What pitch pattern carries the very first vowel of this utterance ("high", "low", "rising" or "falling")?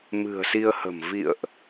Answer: low